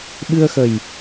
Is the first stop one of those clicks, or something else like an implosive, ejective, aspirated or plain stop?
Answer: implosive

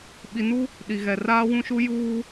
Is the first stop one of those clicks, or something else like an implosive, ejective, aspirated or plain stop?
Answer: implosive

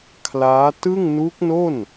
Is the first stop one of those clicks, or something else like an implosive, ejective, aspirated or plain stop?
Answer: aspirated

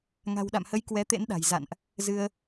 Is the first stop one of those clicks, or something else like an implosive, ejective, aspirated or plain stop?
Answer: implosive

